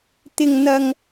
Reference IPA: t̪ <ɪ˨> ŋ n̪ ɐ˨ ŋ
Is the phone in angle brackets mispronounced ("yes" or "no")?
no